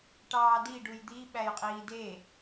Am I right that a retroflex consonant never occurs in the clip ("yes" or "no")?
no